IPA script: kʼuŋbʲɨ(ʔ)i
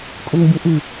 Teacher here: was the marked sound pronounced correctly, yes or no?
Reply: yes